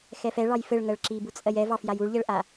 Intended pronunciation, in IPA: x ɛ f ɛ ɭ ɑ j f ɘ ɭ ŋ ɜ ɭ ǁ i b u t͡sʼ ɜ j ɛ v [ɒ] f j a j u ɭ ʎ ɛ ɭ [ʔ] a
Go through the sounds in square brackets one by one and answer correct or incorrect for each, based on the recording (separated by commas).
incorrect, correct